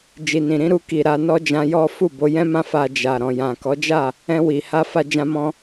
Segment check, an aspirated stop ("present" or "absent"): absent